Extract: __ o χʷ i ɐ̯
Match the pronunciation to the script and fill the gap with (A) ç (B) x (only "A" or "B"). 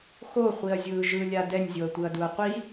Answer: B